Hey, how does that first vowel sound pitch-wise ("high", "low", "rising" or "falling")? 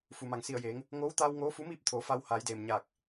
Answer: low